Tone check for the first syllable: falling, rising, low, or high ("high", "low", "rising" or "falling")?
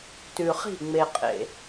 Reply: low